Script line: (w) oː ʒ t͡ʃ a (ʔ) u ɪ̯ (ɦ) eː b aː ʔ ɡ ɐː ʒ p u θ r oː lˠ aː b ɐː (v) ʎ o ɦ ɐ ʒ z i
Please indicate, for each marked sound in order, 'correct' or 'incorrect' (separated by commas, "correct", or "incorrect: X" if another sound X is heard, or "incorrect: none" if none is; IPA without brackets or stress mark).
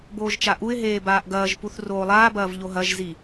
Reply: incorrect: b, correct, correct, correct